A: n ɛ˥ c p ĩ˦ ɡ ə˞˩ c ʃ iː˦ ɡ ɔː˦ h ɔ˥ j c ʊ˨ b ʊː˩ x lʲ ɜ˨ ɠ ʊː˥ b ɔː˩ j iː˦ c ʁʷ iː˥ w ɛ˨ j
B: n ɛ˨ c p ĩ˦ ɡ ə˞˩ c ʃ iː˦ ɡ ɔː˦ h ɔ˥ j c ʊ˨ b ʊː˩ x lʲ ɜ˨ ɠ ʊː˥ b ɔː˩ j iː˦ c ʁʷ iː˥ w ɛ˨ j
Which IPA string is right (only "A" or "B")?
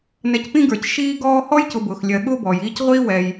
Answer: B